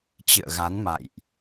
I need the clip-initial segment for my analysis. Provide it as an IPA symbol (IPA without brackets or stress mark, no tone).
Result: t͡ɕ